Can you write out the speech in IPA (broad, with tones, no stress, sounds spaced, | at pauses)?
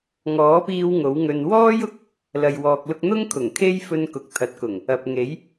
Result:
ŋ ɔː˨˥ p iː˧ w ŋ o˨˥ w ŋ ɵ˧ n w ɔː˥ j ʊ˧ k̚ | l ɐ˨ j w ɔː˨ k̚ l ʊ˧ k̚ n̪ ʊ˥ ŋ kʰ ʊ˨˩ ŋ kʰ e˥ j f ɵ˧ n k ʊ˨ k̚ t̪ʰ ɐ˨˥ t̚ k ʊ˨˩ ŋ | ɐ˨ p̚ ŋ e˨˥ j